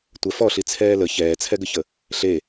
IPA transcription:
tʷ ɛ f ɔ ɬ i t͡sʰ ɛː l ə ç ɛː t͡sʰ ɛ ɡ ə ç ə | ɬ e

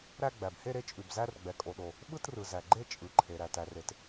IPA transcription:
ɾ æ˥˧ ɡ͡b æ˩ b h e˥˧ ɾ e˥˧ t͡ʃʼ ʉ˩ b z æ˥˧ r ɡ͡b ɛ˩ kʼ o˩ ɗ o˩ | ɓ ɯ˥˧ t r ɯ˩ z æ˩ ɡ͡ǃ e˥˧ t͡ʃʼ ɯ˩ ǃʰ e˩ ɾ æ˩ t æ˩ r e˩ t

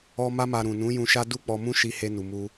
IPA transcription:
ɔ˧ m a˧ m a˨ ɾ ũ˨ n ũ˨˦ j ũ˧ ʃ a˦ d u˦ k͡p ɔ˧ m ũ˦ ʃ i˧ h e˧ n u˨ m u˧

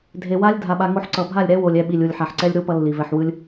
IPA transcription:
dʱ e˨ w a˦ lʲ dʱ a˧ ɓ a˧ ŋ o˦ ħ ǀ ʌ˨ bʱ a˦˨ lʲ ɾ ɛ˦ w o˨ lʲ ɛ˧ ɓ i˨ lʲ u˨ lʲ ħ a˨ ħ ǀ ɛ˦ lʲ ɾ u˦ p ʌ˦ lː i˨ v ɛ˧ ħ w ɯ˦ lʲ

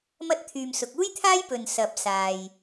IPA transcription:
m ɐ˧ t̚ t̪ʰ yː˨ m s ʊ˨ k̚ uː˥ j t̪ʰ aː˥ j p ɵ˨ n s ɐ˨ p̚ s aː˨ j

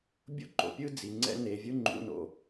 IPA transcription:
bʲ o̰˥ ǃ o̰˩ pʲ ɯ˥ d͡z i˨ ŋ͡ǀ ɛ̰˥ n e˨ vʲ ɯ˦ ŋ͡ǃ ṵ˨ n o̰˩

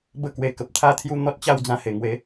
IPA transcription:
b ə˦ k w e˧ k ə˨ p̚ t̪ʰ a˥˧ t̪ʰ j u˦ n̪ ɔ˦ t̚ t͡ɕ a˥˧ w d͡z ã˧ h e˨˩ ŋ w e˨˦

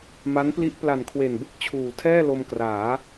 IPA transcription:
m a˦˥ n p l i˦˥ ʔ p l a˨˩ n kʰ w e˨˩ n b ɯ˥˩ k̚ t͡ɕʰ uː˨˩ tʰ ɛː˥˩ l o˧ m k r aː˩˦

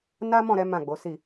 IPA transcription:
n a˦ m ɔ̃˦˨ ɾ ɛ˨˦ m ã˦˨ ɡ͡b o˨˦ s i˦˨

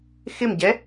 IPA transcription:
x ɪ m ɟ ɛ

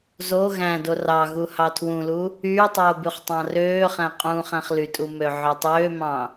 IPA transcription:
z o ɣ æ̃ d o r ɑ ɣ u h ɑ tʰ w ũ l u | yː tˤ oː b y χ tˤ ɑ̃ r øː χ æ̃ qʼ ũː χ æ̃ χ l y tʼ u m ø ʕ ø tˤ øː m ɑ̃

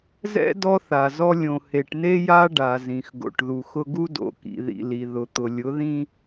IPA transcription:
z ɛ̰˦ d ɔ˦ θ a˨ z ɔ˦ lʲ õ˨ h e˨ ʈ n e˦ j a˦ ɖ a˨ z ĩ˨ x ɡ o̰˨ ʈ ð u˨ x ʊ˦ ɡ u˦ d o̰˨˦ k ḭ˨ ð ḭ˨ l i˨ ð ʊ˨ t̪ ʊ˨ lʲ ʊ˨˦ ð ĩ˦

